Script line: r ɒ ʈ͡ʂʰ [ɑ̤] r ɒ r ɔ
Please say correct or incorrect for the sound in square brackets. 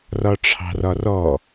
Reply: correct